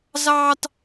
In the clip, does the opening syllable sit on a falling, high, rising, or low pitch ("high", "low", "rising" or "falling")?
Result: high